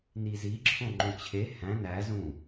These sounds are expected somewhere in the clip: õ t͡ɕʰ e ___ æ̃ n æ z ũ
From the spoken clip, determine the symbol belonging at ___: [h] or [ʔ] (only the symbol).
h